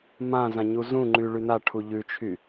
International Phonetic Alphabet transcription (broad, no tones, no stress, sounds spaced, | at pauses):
m ã z ã ɲ u z ũ ŋ͡ǃ y ɭ y n a ʈʰ u ʎ ʉ t͡ʃʰ y